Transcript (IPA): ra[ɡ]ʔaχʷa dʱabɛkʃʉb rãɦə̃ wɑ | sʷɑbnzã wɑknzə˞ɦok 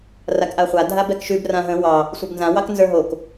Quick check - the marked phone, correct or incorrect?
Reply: incorrect